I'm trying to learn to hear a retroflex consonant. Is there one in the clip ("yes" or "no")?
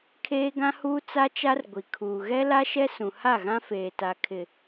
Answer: no